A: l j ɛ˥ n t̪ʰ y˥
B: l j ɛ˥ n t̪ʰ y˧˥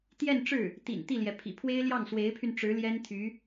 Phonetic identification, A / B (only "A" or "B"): B